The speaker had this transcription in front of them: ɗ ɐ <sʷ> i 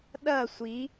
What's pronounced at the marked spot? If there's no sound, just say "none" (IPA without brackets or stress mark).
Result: sʷ